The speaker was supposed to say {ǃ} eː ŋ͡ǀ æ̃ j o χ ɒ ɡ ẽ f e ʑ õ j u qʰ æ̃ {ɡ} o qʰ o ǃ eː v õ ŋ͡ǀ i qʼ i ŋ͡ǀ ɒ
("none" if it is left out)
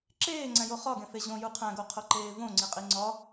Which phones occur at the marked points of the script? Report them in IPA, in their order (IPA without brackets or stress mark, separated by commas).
ǁ, ɡ